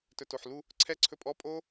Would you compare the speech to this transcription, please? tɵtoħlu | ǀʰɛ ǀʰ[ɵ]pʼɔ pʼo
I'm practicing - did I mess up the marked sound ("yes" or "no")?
no